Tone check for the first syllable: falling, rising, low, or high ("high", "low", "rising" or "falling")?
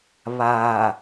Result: low